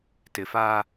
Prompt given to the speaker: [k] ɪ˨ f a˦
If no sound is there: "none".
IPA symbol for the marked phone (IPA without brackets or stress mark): t